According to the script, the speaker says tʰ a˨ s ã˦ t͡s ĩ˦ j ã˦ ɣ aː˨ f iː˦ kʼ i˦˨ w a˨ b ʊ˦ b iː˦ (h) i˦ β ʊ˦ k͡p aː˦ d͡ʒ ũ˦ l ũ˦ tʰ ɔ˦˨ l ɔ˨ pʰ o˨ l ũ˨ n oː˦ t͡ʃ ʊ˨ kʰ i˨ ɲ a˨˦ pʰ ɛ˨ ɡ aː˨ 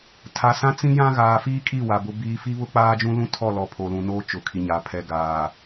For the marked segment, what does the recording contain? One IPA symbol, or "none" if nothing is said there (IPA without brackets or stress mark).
f